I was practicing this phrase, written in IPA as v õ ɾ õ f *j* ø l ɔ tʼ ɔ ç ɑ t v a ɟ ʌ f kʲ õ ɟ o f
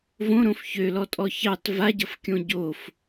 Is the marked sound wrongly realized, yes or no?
yes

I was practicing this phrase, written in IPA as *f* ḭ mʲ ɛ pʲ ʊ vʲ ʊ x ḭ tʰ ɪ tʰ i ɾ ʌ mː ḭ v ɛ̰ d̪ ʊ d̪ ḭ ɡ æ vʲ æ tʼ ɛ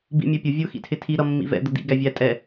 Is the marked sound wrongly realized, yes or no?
yes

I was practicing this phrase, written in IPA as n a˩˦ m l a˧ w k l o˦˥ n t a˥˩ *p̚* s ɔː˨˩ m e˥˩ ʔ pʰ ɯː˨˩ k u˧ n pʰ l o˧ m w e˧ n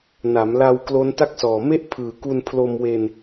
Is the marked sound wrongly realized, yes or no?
yes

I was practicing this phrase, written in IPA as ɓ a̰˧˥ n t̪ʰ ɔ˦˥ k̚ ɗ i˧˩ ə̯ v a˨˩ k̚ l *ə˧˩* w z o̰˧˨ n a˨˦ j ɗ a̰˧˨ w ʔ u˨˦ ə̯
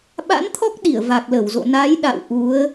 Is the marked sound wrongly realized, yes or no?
no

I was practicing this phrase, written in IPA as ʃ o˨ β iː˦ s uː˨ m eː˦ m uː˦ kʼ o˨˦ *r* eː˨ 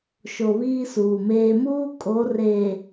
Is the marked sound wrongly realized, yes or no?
no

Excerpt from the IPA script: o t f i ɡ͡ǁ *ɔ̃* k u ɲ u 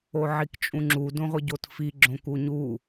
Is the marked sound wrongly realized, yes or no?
yes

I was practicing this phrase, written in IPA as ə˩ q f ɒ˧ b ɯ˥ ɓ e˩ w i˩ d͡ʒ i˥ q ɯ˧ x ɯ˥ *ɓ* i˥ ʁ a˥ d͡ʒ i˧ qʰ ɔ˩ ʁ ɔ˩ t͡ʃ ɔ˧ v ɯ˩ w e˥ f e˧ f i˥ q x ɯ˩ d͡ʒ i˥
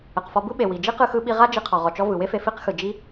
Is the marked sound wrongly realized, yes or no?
no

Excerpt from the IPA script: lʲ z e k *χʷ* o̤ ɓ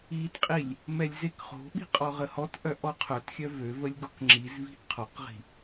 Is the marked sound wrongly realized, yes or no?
yes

